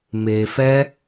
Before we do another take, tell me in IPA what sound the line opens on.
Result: m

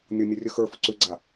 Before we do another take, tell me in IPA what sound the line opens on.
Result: nʲ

